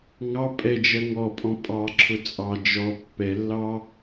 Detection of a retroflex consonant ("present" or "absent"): absent